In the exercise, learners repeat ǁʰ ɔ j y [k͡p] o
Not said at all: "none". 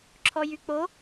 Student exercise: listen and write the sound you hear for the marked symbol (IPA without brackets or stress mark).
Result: k͡p